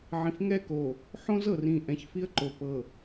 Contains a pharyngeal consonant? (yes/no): yes